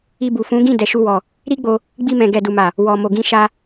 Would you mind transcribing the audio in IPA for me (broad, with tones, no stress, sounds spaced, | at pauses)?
i˧ b u˨ f ũ˨˦ ɡ ĩ˦˨ d ɛ˨ ʃ u˧ w ɔ˨ | ɾ i˦ ɡ͡b o˧ | ɡ͡b i˧ m ɛ̃˨ ɡ ɛ˨ d u˨ m a˨ | w ɔ˨ m o˨ ɡ ĩ˧ ʃ a˧